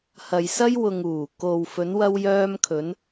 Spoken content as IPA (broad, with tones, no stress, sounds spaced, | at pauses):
h ɐ˨ j s ɐ˥ j w ʊ˨ ŋ uː˨˩ k o˨ w f ɵ˨˧ n w ɐ˧ w j œː˧ m kʰ ɵ˨˧ n